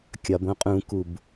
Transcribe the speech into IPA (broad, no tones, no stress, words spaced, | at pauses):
kʲɒb õqʼũkub